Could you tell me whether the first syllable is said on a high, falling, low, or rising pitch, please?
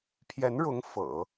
rising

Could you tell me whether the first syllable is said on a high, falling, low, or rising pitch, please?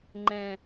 low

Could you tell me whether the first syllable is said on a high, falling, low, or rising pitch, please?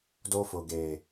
high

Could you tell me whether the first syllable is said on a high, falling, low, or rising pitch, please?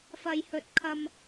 high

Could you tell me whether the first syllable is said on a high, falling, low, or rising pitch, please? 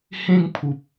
falling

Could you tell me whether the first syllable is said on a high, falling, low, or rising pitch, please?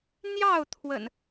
falling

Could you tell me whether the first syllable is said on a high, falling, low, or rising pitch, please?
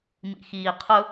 low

